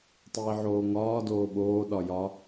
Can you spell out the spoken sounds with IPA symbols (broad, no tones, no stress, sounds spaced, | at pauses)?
tˤ iː ʕ oː ŋ ɒː d oː ɓ oː ɗ ɒ j ɒ